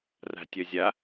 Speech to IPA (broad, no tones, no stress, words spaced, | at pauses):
ra̤tʲœzʲa